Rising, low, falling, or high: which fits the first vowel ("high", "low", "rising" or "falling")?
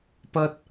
high